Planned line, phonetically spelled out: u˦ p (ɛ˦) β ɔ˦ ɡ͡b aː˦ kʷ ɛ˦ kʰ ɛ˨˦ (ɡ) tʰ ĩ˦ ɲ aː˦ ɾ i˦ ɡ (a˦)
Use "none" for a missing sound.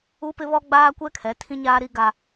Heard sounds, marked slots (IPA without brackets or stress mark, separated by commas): ɪ˦, none, a˦